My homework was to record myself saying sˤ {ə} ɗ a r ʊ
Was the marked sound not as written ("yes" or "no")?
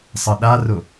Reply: no